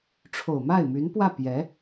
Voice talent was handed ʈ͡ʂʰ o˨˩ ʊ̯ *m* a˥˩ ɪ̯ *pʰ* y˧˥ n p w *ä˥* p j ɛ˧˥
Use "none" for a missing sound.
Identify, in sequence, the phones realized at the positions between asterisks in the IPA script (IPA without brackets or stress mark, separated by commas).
m, m, ä˥˩